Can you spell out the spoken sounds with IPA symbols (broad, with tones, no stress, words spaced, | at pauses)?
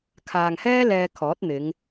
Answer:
kʰaː˨ŋhɛː˥ lɛː˧ kʰɔː˨˥t̚n̪ɪ˨˧ŋ